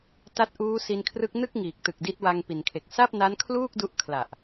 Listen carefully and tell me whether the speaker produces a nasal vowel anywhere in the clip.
no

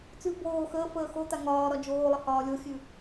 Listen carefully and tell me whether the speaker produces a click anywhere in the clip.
no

